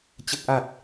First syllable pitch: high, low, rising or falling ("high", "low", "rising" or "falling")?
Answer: low